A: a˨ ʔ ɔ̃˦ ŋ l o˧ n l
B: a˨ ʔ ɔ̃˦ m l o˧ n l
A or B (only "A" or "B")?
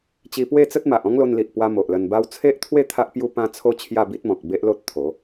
A